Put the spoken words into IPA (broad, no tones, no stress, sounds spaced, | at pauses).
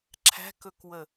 ǁʰ æ̤ k ɵ k w ə